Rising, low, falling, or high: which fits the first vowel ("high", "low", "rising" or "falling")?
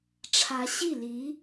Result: rising